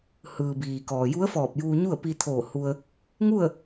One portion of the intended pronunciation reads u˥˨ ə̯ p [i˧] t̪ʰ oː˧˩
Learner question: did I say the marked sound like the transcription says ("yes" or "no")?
yes